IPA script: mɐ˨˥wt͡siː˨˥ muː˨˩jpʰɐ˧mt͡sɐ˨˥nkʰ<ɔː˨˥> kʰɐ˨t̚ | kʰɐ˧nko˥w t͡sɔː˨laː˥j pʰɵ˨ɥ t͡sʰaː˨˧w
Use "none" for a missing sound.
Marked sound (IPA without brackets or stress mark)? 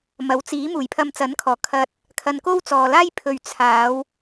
ɔː˨˩